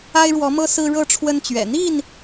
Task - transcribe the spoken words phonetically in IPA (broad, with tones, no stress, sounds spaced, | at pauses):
a˦ ɪ̯ ɻ w ɔ˨˦ m ɤ˦ s ɹ̩˦ ɻ ɤ˥˨ ʈ͡ʂʰ w ə˦ n t͡ɕ ɥ ɛ̰˨˩ n̪ i˥˨ n